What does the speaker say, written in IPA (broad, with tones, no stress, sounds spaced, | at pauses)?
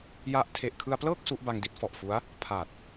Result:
j a˦˥ ʔ tʰ e˨˩ ʔ kʰ ɯ˧ a̯ p l ɤː˥˩ k̚ s u˦˥ ʔ b a˧ ŋ d i˦˥ t̚ f ɔ˨˩ ʔ f u˦˥ a̯ | pʰ a˨˩ t̚